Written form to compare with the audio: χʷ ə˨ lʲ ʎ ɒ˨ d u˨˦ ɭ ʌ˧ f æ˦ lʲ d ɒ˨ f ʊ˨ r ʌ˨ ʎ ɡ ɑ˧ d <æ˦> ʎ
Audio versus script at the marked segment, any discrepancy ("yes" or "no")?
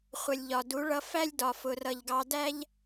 no